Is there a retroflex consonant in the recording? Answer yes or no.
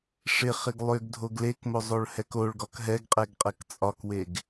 yes